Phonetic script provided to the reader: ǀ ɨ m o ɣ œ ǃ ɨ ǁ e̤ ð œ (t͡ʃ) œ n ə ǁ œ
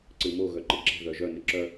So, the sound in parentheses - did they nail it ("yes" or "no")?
no